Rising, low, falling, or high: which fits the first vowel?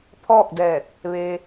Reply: falling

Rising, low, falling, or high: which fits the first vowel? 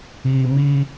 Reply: low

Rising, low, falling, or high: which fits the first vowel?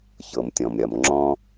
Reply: low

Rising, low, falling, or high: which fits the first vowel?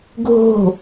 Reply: falling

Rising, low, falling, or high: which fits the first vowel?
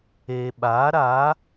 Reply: low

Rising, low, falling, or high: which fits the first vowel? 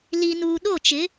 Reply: low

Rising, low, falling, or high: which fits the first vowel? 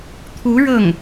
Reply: rising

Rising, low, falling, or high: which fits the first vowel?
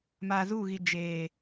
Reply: low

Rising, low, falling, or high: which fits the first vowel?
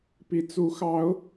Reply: rising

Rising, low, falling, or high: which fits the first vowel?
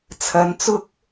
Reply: rising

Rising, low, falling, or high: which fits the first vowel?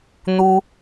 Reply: high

